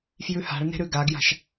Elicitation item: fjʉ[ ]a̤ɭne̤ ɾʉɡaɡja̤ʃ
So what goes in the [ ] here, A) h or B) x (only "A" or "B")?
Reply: A